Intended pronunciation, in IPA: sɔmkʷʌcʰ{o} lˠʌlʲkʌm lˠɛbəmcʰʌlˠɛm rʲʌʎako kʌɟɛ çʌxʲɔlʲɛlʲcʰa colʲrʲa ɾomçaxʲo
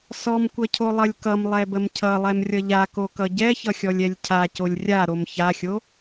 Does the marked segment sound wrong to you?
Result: no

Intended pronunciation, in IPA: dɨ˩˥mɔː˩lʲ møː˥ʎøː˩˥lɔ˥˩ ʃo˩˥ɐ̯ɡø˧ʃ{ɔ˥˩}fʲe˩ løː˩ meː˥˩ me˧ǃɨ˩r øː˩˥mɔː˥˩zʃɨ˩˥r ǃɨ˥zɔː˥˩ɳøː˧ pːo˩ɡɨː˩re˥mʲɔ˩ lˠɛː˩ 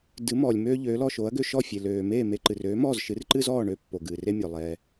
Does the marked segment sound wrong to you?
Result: no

